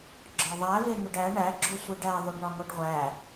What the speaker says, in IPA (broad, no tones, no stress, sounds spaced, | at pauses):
ɡ͡ǁ ɒ ðˤ æ v e n̪ u ɖ æ ɳ æ ɡ͡ǁ o sʷ i ɖ æ ðˤ o ɖ ɳ ɒ ŋ o ɖ ʁʷ æ